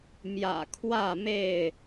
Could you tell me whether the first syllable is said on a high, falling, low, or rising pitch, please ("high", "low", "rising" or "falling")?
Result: low